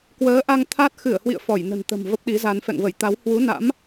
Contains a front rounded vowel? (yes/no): no